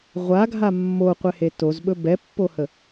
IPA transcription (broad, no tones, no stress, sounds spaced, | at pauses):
ʁʷ a ɡʱ a mː o qʷ ɛ h e t o z ɓ ɵ b ɛ pː o h ə